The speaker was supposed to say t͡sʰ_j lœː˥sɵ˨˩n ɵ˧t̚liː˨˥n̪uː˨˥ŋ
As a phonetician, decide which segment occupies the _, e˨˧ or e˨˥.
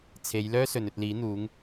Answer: e˨˧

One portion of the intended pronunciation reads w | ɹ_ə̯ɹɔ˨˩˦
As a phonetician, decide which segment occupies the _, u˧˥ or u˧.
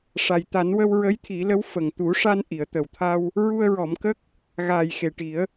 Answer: u˧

